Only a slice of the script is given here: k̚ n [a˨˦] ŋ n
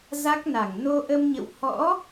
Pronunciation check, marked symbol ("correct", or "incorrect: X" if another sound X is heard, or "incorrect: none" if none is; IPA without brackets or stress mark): incorrect: a˧˩